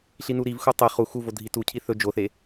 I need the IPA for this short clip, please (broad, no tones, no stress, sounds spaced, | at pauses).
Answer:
ɬ i n u ɾ i v x u tˤ e χ u x u v o dʱ i t u cʰ i θ ɵ d͡ʒ o θ e